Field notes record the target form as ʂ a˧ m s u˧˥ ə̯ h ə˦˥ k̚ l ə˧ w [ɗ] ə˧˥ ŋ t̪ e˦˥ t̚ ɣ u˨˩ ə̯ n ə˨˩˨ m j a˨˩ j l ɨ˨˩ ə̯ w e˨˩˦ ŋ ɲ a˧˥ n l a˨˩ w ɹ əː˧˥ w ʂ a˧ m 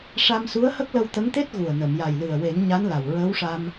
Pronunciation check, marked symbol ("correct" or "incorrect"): incorrect